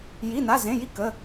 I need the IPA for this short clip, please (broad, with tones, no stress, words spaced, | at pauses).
ji˧˥˧na˧˥˧zẽ˧˥˧ ji˥˨ kə˧˥˧